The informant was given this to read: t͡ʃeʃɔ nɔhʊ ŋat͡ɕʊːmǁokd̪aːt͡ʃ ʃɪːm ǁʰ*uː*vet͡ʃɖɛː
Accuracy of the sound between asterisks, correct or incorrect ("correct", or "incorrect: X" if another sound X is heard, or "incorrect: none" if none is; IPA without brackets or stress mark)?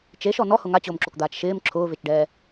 incorrect: ʊː